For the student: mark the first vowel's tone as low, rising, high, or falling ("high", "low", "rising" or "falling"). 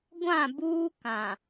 falling